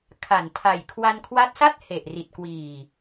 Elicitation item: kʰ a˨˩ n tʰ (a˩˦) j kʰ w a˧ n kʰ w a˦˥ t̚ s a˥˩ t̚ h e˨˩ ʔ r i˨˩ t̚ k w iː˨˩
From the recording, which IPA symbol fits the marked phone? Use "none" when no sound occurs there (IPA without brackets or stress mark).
a˨˩